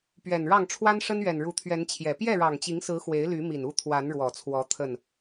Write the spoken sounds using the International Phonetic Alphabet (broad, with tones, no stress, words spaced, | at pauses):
pɥɛ˨˩nɻɑ˥˨ŋ ʈ͡ʂʰwa˦nʂə˦nɥɛ˨˩n ɻu˨˦t̪ʰɥɛ˨˦nt͡ɕʰjɛ˨˩ pjɛ˥˨ɻɑ˨˩ŋt͡ɕi˨˦ŋsɹ̩˨˦ xwe˨˦ɪ̯ly˨˦mi˨˩n u˥˨t̪ʰwa˨˦nɻwɔ˨˩t͡sʰwɔ˨˦ t̪ʰə˥˨n